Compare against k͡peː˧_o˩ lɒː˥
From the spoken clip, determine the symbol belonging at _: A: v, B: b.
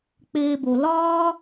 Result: B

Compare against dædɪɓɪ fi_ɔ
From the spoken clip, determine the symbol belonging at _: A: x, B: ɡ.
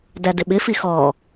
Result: A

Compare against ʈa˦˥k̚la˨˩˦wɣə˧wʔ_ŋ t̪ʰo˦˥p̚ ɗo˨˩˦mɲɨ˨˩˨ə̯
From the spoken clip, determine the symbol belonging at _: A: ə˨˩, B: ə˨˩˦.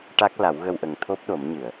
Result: A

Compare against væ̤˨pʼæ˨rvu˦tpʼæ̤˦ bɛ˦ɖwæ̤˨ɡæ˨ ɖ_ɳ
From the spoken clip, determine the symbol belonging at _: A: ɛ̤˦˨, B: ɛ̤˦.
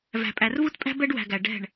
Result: A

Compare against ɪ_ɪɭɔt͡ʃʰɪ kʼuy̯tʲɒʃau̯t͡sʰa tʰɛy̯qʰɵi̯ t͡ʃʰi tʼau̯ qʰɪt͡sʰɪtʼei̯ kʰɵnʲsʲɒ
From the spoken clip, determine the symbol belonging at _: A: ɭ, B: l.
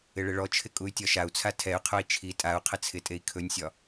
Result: A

